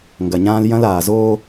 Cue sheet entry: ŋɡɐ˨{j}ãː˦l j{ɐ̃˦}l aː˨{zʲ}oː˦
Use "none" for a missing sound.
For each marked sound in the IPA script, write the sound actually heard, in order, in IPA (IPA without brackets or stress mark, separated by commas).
ɲ, ɐ̃˦, z